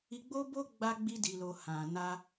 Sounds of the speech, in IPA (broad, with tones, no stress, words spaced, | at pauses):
i˦ ɡ͡bo˦bo˦ ɡ͡ba˧ɡ͡bi˧ di˧lo˧ hã˨ na˧